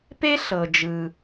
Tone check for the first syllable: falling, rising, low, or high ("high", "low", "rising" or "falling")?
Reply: high